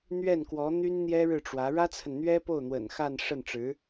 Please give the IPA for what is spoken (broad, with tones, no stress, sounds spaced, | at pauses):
n̪ ɥ ɛ˥˩ n k w ɔ˧˥ n̪ y˥ n n̪ j ɛ˥ ɻ ɻ̩˥˩ ʈ͡ʂ w ä˧˥ ɻ ä˥ t͡sʰ ə˨ n n̪ ɥ ɛ˥ p o˥˩ ʊ̯ n̪ w ə̰˨˩ n x a˥˧ n ʂ ə˥˩ n ʈ͡ʂ ɻ̩˧˥